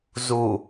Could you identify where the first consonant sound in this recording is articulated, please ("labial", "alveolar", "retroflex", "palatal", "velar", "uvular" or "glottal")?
alveolar